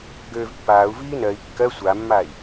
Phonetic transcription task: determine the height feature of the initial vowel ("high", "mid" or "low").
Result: mid